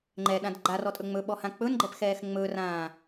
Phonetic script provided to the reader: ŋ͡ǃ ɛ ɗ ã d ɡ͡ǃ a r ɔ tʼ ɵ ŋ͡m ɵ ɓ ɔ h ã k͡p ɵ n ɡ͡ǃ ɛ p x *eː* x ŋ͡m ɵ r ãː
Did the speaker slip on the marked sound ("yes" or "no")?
yes